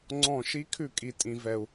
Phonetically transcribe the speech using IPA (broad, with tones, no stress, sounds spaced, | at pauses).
ŋ͡ǀ ɔ̃˧˩˧ ʃ i˧˥ kʰ ʉ˧˩˧ kʼ i˩ tʼ ĩ˩ v ɛ˩ u̯